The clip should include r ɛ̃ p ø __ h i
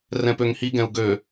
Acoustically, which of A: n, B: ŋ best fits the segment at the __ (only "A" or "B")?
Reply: B